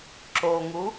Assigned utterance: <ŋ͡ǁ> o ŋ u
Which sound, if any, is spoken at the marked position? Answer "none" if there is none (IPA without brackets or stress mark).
ǁ